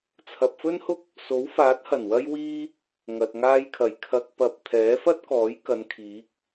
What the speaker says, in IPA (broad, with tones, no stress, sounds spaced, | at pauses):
t͡sʰ ɐ˨ p̚ f ɵ˥ n h ʊ˥ k̚ | s o˨˥ w f aː˨˥ t̚ h ɐ˨˩ n w ɐ˧ j w iː˥ | ŋ ɐ˨ t̚ ŋ aː˧ j kʰ ɐ˨˩ j kʰ ɐ˧ k̚ p ɐ˧ p̚ t̪ʰ ɛː˨˥ f ɐ˥ t̚ k ɔː˨˥ j k ɐ˨˧ n kʰ iː˨˥ k̚